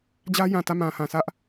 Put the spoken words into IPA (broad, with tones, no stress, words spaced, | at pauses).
d͡ʑä˦jã˨tä˦˨ mã˨hã˨sä˦ʔ